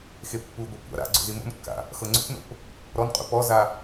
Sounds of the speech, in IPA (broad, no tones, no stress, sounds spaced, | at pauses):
x e pː u ɡʷ ɤ kʷ a̰ ɾ a̰ ɡ͡ǀ o̰ z i m o̰ n kː a̰ | x ɤ ŋ͡ǀ o̰ p n o̰ p | ɾ ɔ n qʼ ṵ p ɔ z a